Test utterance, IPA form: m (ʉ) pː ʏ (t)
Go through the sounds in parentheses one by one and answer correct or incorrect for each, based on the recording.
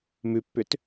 correct, correct

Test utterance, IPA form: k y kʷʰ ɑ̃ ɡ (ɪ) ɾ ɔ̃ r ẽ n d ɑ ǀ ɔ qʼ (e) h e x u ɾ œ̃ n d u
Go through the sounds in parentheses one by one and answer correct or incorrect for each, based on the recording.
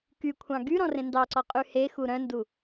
incorrect, incorrect

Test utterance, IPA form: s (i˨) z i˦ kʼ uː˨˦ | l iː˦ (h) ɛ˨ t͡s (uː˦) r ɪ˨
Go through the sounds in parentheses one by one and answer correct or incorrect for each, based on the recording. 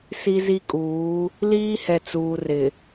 incorrect, correct, incorrect

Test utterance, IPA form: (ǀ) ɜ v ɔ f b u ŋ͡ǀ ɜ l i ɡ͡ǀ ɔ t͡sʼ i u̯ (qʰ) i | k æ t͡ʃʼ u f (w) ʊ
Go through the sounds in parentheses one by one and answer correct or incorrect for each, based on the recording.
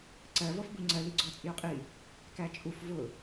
correct, incorrect, incorrect

